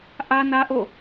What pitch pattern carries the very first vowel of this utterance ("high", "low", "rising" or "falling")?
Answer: high